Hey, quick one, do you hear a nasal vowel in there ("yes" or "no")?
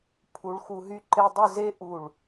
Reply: no